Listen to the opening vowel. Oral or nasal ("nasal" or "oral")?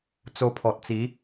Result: oral